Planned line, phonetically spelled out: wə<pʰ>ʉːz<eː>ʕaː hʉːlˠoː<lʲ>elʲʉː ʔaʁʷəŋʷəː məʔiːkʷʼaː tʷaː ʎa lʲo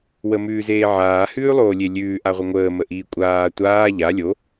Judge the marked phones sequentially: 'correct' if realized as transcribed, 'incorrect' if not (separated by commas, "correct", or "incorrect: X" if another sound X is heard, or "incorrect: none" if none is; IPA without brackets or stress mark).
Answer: incorrect: m, correct, correct